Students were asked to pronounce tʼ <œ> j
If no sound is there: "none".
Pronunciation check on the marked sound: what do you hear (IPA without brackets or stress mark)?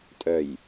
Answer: œ